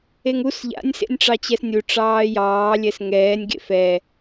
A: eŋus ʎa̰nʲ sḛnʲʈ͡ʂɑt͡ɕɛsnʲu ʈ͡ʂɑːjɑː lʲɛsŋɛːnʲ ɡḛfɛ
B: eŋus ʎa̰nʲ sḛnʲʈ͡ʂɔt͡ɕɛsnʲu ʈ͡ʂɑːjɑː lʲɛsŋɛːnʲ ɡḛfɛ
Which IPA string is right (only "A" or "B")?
A